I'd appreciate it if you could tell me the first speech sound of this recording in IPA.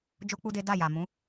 d͡ʒ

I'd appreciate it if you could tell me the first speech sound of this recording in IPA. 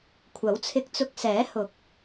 kʷʰ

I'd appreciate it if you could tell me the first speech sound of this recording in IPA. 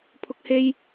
pʰ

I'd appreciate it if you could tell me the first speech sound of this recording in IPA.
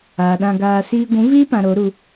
aː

